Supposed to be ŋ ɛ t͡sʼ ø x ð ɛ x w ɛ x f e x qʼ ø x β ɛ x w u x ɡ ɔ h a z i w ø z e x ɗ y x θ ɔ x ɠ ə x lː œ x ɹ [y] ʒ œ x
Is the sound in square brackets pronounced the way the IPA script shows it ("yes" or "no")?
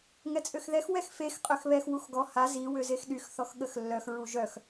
no